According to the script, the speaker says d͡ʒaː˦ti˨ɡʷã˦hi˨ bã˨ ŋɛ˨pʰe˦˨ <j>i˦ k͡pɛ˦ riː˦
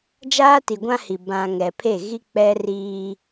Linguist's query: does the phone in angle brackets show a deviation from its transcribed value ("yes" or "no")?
yes